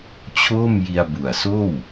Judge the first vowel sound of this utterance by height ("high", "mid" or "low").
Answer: mid